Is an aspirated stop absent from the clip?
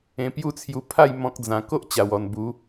no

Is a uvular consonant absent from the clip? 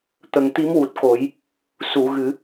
yes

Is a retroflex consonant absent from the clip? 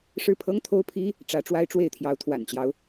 no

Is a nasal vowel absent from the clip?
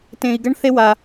no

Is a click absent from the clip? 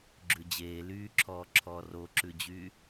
no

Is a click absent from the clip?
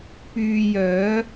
yes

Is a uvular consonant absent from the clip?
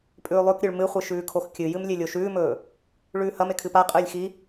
no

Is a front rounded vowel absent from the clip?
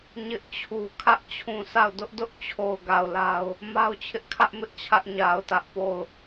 yes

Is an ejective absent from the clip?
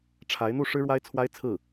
yes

